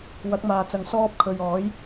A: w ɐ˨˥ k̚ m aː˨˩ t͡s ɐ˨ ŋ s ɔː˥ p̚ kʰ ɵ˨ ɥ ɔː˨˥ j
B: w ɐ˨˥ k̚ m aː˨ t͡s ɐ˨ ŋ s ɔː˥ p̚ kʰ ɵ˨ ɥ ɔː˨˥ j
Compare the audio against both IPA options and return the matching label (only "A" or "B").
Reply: B